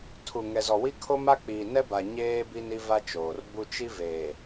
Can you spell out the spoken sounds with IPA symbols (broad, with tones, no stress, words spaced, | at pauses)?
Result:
tʰu˨ ŋɛ˨zɔ˨wi˦ kʰo˦ma˦ k͡piː˨nɛ˦ba˨ ɲeː˦ bi˦ni˦va˦t͡ʃoː˨r bu˦ t͡ʃi˦veː˨